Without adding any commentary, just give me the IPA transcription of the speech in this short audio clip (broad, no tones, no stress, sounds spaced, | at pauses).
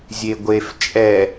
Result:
zʲ e ɡʷ e f t͡ʃʼ ɛ